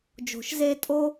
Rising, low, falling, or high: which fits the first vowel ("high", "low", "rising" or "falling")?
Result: low